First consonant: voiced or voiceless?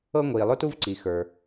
voiced